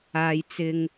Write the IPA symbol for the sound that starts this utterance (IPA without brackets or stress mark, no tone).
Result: aː